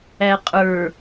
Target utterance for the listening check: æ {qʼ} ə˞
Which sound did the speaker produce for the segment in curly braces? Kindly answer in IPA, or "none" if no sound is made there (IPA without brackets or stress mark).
qʼ